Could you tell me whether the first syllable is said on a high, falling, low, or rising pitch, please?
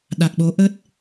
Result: low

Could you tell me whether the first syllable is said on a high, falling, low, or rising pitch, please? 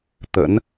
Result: rising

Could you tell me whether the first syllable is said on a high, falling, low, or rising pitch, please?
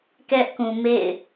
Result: high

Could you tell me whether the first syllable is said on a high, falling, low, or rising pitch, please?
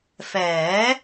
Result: rising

